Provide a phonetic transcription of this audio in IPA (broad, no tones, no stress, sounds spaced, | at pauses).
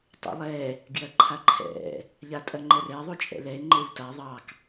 tˤ ṵ lˠ ɛ | ɡ j ɐ ǃʰ a ǃʰ ɛ̰ | ʎ a tʼ ɐ ŋ͡ǃ ɛ r ɛ ðˤ u t͡ʃʼ ɛ̰ l ɛ e̯ ŋ͡ǃ e w t a ðˤ ɑ k